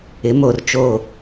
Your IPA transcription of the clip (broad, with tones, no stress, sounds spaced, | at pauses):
ɪ˨˦ m o˨ r t͡ʃ o˦˨